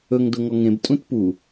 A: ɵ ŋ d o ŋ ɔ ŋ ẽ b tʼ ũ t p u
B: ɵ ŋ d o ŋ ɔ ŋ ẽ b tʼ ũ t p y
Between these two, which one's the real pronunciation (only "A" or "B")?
A